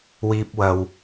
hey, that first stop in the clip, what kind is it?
plain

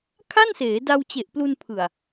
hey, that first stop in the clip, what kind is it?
aspirated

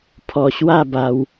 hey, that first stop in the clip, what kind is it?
aspirated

